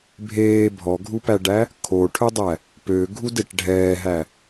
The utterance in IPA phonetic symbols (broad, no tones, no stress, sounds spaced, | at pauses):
bʱ eː bʱ ɔ ɡʱ u p æ ɖ æ | kʰ o ʈʰ ɵ dˤ æ | p ø ɡʱ u d e ʈ ɖʱ ɛː ɦ æ